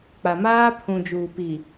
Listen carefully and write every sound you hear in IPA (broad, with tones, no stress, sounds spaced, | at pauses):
k͡p a˨ m aː˦ pʰ ũ˨ d͡ʒ uː˨ p i˨